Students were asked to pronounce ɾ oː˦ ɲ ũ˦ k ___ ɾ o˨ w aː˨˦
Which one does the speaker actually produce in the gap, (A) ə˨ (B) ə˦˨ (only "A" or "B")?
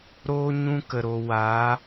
A